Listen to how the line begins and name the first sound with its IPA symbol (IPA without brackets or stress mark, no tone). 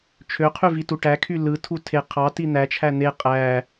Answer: t͡ʃʰ